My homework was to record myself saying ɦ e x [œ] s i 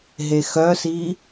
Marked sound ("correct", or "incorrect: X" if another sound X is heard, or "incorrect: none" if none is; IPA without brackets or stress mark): correct